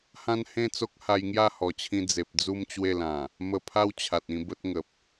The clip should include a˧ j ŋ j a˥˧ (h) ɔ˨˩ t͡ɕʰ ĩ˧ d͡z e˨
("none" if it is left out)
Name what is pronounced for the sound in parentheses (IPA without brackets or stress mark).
h